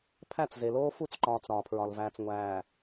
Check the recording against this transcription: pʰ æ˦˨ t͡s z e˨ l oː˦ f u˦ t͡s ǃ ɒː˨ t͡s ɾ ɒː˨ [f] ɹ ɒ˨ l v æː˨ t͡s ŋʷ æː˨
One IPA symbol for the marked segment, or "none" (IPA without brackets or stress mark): pʰ